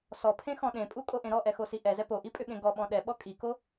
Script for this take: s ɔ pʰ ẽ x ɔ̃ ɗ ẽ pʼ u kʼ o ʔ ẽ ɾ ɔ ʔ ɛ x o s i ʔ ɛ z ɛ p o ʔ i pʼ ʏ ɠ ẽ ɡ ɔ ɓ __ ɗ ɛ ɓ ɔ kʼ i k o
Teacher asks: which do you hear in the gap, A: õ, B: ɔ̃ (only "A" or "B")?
B